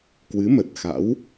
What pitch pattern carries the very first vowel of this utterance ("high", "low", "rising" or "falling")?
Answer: rising